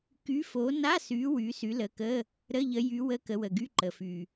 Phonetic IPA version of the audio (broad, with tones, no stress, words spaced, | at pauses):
ky˨˦ fo˨˦na˧˥˧sy˨˦ wy˨˦sy˨˦lə˨˦kə˧˥˧ | ɾə˧˥˧ʎə˨˦jy˨˦ wə˧˥˧kə˨˦wə˩ɡy˧˥˧ ǃə˩fy˩